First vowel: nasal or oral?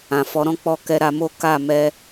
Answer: nasal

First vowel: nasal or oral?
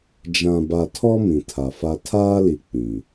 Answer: nasal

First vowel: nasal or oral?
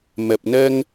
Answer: oral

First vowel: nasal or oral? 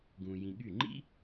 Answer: nasal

